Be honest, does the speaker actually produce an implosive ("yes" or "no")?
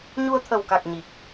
no